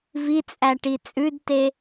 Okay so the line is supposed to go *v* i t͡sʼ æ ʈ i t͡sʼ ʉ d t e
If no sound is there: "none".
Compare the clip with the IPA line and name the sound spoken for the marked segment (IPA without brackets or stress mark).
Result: v